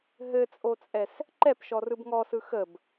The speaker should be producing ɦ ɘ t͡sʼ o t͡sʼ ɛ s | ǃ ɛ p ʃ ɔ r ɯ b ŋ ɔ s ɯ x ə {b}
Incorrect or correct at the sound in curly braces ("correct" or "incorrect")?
correct